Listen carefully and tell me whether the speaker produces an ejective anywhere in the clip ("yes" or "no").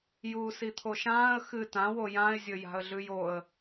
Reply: no